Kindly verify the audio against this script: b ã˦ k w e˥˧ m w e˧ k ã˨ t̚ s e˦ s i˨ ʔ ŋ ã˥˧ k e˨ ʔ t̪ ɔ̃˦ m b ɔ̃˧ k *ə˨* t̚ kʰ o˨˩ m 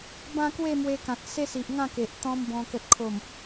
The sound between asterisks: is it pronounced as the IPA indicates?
yes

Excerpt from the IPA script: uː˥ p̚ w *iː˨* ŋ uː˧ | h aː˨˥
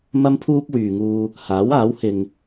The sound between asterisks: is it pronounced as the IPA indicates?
no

